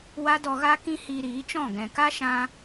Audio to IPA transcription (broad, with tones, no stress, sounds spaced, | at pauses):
w a˦ d ɔ˧ ɣ a˦ k ĩ˦ h iː˧ ɾ iː˨˦ t͡ʃ ɔ̃˦˨ ɡ ɛ̃˨ k a˦ ʃ ã˧